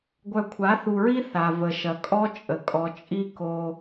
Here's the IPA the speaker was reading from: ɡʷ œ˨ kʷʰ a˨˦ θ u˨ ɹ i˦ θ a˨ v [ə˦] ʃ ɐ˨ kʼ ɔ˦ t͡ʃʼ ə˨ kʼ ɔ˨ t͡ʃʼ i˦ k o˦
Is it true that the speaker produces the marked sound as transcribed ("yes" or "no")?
no